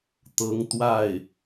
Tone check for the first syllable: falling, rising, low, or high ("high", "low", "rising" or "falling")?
rising